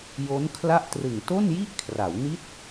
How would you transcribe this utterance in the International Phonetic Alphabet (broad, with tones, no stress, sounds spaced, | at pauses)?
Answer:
j o˦˥ n kʰ l a˥˩ ʔ t r ɯ˨˩ ŋ t o˥˩ n j i˥˩ ʔ kʰ r a˩˦ w n i˦˥ t̚